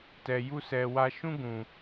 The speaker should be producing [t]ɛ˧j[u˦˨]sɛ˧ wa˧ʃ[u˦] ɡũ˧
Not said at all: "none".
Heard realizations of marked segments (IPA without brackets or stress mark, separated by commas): t, u˦, ũ˦